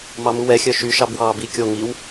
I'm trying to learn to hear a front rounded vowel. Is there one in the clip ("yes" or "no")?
yes